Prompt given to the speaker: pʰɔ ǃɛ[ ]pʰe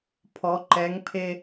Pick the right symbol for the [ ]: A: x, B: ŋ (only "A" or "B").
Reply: B